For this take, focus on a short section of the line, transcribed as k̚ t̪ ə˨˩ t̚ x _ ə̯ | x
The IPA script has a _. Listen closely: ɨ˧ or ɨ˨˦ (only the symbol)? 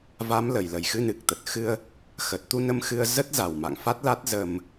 ɨ˧